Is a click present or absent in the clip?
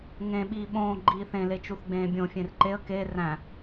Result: present